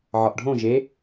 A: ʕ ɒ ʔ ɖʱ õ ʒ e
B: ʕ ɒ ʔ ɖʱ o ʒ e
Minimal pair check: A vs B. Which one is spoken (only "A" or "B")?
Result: A